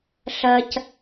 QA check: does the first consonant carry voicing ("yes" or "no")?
no